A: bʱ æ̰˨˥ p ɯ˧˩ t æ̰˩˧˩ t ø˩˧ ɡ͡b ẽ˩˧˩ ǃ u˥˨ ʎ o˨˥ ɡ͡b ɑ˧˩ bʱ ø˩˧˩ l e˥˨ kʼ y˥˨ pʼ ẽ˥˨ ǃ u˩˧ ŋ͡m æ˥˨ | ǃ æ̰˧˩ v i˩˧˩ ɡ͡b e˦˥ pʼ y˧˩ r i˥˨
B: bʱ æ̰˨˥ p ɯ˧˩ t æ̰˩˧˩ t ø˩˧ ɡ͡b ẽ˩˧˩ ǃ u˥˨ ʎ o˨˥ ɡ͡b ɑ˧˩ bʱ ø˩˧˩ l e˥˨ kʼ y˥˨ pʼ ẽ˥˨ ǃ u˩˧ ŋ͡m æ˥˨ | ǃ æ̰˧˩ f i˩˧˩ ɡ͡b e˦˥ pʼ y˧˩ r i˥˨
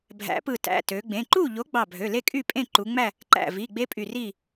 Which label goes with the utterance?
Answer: A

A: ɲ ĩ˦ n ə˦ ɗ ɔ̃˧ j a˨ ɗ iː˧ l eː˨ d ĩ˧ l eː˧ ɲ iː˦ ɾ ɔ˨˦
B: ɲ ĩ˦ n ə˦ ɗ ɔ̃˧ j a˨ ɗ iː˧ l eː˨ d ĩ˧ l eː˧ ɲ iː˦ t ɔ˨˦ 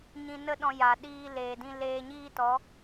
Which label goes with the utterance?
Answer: B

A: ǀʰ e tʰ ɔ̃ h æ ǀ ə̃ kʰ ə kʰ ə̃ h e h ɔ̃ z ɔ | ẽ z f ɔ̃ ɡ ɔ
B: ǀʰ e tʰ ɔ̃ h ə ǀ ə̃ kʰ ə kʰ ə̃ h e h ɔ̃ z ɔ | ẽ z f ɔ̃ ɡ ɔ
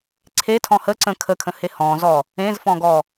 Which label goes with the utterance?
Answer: B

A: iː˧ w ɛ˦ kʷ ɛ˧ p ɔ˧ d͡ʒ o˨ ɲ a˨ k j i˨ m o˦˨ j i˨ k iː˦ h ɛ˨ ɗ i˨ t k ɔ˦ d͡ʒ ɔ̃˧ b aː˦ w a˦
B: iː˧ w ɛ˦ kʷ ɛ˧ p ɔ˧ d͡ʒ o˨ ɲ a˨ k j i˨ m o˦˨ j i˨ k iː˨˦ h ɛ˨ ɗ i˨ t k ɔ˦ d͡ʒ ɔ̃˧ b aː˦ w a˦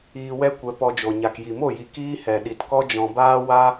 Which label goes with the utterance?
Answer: A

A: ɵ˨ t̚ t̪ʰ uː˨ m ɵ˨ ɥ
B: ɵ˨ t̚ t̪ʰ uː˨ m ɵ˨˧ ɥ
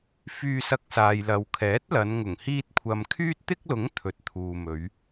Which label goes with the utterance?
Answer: B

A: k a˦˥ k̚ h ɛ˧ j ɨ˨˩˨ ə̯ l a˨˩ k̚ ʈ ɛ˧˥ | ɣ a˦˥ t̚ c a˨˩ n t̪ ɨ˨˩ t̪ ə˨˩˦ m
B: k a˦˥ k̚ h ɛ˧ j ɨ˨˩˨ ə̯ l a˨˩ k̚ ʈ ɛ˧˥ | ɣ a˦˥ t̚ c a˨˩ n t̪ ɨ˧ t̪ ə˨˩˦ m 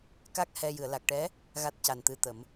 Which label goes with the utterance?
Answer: B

